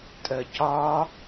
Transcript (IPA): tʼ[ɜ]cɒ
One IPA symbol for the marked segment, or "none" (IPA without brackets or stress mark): ɜ